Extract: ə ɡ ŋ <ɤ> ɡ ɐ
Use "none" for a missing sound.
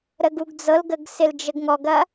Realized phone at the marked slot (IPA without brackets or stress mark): ɔ